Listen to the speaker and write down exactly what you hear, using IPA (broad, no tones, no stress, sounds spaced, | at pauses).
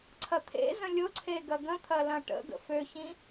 ǀʰ ɐ t̪ʰ ḛ z ə̃ lʲ ʊ ǀʰ e ɡ ɐ ɡ ə̃ t̪ʰ ɐ l ɐ̃ ʈ ə̰ ɡ ə̰ f ø ç ĩ